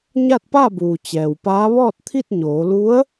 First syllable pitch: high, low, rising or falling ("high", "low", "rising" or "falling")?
falling